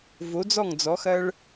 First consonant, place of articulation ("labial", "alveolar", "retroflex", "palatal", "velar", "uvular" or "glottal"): labial